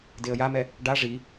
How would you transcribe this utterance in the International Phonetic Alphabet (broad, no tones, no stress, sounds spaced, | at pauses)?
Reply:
d e ə̯ j a m ɛ | ɖ a ʐ i